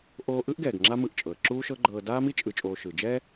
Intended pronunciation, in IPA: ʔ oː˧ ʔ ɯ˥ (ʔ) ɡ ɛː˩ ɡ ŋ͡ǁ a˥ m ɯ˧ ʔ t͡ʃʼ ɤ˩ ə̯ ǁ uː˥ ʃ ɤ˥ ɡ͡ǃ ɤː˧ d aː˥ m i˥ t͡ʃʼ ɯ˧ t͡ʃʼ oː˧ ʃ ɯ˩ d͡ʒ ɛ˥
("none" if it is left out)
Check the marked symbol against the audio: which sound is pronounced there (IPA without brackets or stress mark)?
ʔ